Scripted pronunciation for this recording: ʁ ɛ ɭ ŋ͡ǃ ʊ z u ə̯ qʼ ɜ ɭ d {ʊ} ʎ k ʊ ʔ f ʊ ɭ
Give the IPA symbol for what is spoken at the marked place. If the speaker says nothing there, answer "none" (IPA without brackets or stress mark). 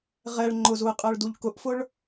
u